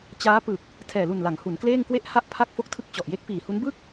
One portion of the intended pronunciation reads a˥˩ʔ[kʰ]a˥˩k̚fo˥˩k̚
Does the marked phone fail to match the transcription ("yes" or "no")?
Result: yes